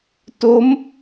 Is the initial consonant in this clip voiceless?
yes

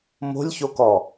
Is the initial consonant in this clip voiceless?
no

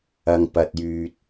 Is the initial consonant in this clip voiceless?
no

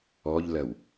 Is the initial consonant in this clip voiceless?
no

